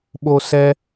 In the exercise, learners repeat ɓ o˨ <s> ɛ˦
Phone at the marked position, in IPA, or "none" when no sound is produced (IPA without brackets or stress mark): s